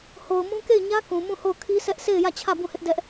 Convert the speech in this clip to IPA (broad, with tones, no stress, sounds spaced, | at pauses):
h o˨ ʊ̯ m ũ˦ k e˦˨ ɪ̯ ɲ ä˦ k ũ˨ m ũ˦˨ h o˦˨ ʊ̯ kʰ i˦ s ɛ˦ ʔ s e˦˨ ɪ̯ j ä˦˨ t͡ɕʰ ä˦˨ b ũ˦˨ h ɪ˦ ʔ d ɛ˦ ʔ